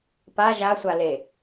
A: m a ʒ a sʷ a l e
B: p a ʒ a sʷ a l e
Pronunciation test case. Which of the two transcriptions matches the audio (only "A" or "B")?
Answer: B